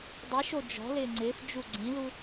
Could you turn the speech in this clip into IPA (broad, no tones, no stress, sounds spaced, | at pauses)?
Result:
dˤ i ʃ o d͡ʒ ɔ̤ l ɪː ŋ͡ǀ ɪː f d͡ʒ u ɡ͡ǀ ĩ l u